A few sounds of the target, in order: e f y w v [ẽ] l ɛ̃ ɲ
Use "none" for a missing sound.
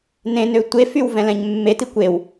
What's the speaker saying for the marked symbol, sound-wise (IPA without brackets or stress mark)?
ɛ̃